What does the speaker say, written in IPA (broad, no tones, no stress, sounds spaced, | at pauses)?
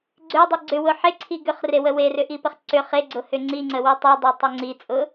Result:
ɡ͡ǀ ʏ dˤ i ɡ͡ǀ ʏ w ʊ ħ e ǀʰ i ɡ ʏ χ r e w ə w e r ʏ ʔ i p ə χ ǀ ʏ χ e ɡ͡ǀ ʊ h ʏ ŋ͡ǀ i ŋ͡ǀ ə w i tˤ i dˤ ʉ tˤ ʏ ŋ͡ǀ i t͡sʼ ʊ